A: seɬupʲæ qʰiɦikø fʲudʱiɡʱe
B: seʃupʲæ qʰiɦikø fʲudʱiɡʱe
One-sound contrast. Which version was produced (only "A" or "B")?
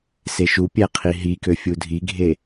B